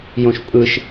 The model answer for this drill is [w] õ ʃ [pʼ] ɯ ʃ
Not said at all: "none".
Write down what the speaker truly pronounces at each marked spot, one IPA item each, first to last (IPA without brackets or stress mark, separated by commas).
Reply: j, pʼ